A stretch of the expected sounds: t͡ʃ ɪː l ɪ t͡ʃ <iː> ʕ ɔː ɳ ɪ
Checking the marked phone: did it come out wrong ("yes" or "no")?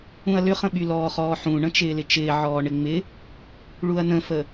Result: yes